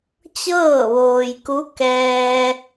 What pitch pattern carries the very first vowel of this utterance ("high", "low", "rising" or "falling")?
falling